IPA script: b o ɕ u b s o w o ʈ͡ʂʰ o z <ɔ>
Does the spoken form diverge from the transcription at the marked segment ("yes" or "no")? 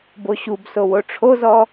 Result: no